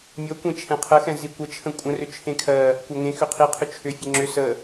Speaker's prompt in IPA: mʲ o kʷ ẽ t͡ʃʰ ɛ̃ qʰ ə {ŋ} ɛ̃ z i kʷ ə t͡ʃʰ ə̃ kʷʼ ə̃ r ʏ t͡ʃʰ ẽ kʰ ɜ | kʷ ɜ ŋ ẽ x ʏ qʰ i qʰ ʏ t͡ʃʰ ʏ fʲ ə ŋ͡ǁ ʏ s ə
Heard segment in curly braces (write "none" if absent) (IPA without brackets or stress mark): x